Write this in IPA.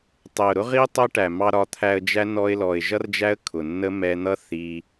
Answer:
tˤ ɛ˨ ʊ̯ ɾ ʊ˦ ʁ i˦ tˤ ʌ˦ ʈ æ˨ m ɑ˧ ɾ ɒ˨˦ t̪ʰ æ˧ ə̯ d͡ʒ æ˦ n ɔ˧ ɪ̯ l ɔ˨ ɪ̯ ʒ ʌ˦ r d͡ʒ æ˦ ə̯ kʰ ʊ˨ nː ə˦ m ɛ˧ n̪ ʌ˦ θ i˧

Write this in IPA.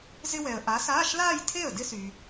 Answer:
z ɪ˥ w ɛ˨ ə̯ ʔ a˨˥ s aː˧˥˧ ʃ l aː˥˧ j tʰ e˥˩ ə̯ d ɪ˥ s y˨

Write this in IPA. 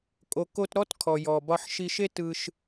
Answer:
kʼ o˩ k o˧ t ɾ ɔ˥ t kʰ ɔ˩ j ɔ˩ b ɒ˧ ħ ʃ i˧ ʃ e˥ t ɯ˧ ʃ

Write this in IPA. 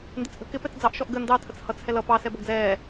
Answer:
n d ɪ t͡s ʔ ə̤ k ɪ p ɛ t͡s d͡z ɑ ʔ ʃ ɔ ʔ ɡ ə n d ɑ tʰ ə t͡s h ʌ t͡s h ɛ l ʌ p ɑ s ɛ b ʌ ɡ d͡z ɛː

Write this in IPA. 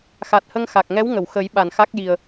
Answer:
x a˨˩ t̚ h ə˧ ŋ x a˨˩ k̚ ŋ ɛ˧˥ w ŋ ə˨˩˨ w x ə˨˩˦ j ɓ a˨˩ n x a˦˥ k̚ j i˨˩ ə̯

